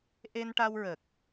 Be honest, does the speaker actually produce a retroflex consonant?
yes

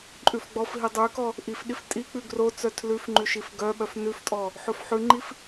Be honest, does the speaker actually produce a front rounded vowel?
yes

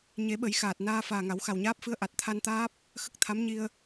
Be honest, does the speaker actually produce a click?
no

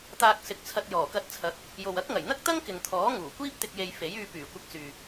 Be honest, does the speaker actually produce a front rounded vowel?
yes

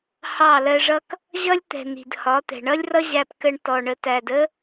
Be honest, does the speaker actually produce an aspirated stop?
no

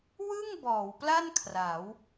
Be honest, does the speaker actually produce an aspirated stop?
yes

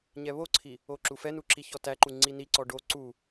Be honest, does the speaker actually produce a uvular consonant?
no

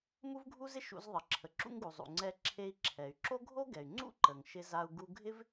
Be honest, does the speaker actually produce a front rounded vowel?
yes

